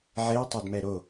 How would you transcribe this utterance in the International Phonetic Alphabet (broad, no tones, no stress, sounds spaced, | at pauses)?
ʕ e ɐ̯ tˤ a d m ɛ ɾ o